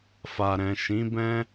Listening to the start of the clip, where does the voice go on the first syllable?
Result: low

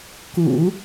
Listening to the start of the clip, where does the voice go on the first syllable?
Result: low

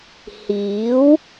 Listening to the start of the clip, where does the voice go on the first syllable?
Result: rising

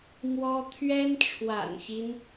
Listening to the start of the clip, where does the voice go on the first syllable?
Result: high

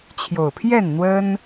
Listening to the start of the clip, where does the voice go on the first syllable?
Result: low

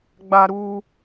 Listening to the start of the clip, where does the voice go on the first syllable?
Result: low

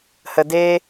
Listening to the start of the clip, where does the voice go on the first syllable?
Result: low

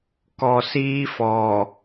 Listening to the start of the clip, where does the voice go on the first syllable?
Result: low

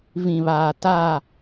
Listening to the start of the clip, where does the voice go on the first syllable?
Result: low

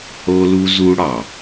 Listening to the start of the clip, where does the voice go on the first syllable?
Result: high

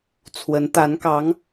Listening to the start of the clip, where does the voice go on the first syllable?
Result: rising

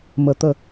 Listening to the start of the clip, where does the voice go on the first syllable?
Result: low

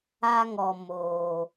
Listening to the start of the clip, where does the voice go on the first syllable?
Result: high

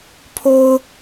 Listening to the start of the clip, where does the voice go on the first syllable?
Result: low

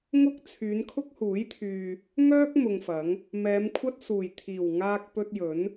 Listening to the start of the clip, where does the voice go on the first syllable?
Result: high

